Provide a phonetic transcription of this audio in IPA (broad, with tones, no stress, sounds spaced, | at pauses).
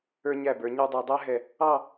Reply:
ə˞˧ ɲ æ˧˩ b ə˞˩˧ ɲ ə˞˧ dˤ æ˧ dˤ æ˥ ɦ ɛ˧˩ | ɑ˥˧